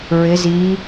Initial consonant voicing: voiced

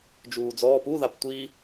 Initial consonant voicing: voiced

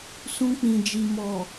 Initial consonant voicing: voiceless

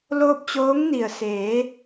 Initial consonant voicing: voiced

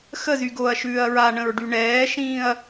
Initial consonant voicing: voiceless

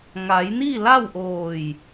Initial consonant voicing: voiced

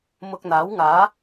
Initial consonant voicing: voiced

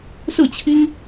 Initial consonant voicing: voiceless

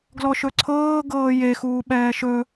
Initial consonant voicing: voiced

